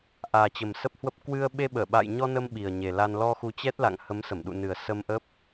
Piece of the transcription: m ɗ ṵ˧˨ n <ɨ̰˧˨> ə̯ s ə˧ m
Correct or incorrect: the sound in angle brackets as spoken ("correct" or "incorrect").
incorrect